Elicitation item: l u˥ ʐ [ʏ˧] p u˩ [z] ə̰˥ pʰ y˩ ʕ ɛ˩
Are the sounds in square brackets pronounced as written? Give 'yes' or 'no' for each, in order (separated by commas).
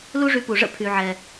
no, no